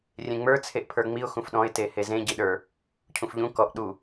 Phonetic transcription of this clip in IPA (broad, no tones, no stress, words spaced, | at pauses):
rʲẽŋ͡mə˞ t͡sʰeʔpʰə˞ŋ͡miʊ̯ xũfɗɔ̃ɪ̯ tehezẽ ɟiɗə˞ | cʰũfʎũ kɔʔ ɗu